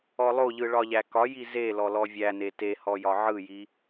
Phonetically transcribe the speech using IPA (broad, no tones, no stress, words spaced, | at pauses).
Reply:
ɔlˠoʎɯ ɭɒʎækɒji zelɔ lɔvʲæne tehɔ jɒʕɯji